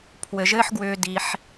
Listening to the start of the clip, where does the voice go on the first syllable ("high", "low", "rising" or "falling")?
low